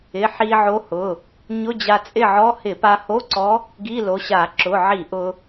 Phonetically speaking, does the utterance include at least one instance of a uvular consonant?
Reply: no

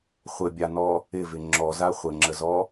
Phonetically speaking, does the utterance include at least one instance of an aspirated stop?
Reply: no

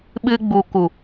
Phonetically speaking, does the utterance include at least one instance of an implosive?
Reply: yes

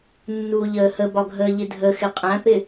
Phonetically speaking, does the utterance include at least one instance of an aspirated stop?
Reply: no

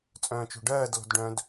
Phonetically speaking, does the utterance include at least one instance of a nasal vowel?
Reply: yes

